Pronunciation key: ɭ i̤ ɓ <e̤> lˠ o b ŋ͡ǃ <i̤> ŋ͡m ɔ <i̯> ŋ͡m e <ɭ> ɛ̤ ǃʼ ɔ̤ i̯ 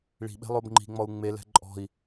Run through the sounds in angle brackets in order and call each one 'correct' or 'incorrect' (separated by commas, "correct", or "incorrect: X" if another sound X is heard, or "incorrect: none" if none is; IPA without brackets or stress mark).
correct, correct, incorrect: u̯, incorrect: l